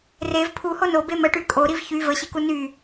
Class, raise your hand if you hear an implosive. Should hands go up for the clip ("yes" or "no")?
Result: no